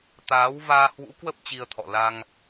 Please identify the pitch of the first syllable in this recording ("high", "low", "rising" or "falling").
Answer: rising